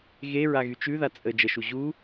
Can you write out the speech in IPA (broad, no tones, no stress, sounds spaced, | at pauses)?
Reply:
ɣ e ɹ a ɣ y t͡ʃ ʉ ð a t͡sʼ ə d͡ʒ ə ʃ u ʑ u